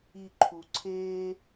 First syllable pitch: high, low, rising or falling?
low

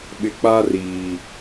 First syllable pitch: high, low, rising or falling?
low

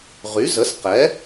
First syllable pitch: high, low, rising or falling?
rising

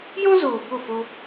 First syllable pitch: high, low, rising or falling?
high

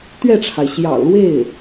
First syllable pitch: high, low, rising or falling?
falling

